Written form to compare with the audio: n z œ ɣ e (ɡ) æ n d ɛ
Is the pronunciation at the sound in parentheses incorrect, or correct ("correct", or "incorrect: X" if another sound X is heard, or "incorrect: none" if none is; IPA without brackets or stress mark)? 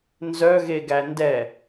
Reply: correct